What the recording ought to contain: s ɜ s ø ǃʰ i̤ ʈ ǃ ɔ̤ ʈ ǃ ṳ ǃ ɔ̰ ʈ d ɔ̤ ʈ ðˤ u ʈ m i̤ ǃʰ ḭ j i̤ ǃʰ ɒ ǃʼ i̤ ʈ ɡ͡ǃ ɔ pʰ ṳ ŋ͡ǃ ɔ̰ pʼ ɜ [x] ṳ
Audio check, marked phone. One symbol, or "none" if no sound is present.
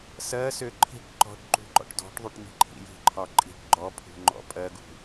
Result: ɡ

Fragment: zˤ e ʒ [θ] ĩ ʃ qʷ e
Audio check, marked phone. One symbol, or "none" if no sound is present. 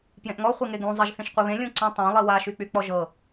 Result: θ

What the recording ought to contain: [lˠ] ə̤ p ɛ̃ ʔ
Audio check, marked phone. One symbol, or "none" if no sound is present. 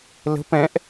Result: l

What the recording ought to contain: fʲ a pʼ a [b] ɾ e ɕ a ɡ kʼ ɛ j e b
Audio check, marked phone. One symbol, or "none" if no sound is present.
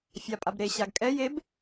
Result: b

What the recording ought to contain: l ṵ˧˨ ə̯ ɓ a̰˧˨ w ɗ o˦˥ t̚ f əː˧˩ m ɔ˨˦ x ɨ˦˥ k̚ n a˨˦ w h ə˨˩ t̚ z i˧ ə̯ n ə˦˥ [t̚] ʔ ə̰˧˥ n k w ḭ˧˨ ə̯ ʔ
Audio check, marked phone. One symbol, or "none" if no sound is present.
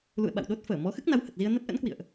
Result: t̚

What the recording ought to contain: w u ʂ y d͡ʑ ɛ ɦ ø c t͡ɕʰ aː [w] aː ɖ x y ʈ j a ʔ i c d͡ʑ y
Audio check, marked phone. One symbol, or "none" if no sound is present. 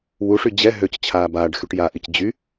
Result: b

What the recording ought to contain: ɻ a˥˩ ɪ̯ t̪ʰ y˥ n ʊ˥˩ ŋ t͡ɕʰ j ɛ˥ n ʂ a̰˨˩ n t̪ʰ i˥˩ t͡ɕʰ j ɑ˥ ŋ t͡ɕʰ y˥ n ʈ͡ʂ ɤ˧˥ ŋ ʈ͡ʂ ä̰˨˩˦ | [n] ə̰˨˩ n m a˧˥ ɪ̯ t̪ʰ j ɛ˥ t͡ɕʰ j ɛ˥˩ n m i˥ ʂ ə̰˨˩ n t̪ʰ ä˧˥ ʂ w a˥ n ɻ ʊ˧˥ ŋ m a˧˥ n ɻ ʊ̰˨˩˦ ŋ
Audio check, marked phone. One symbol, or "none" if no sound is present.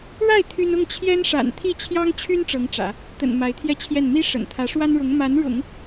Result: t̪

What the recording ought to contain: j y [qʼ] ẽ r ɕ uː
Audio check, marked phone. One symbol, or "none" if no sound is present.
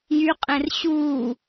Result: qʼ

